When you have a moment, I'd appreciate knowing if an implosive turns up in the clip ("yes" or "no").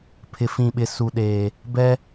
yes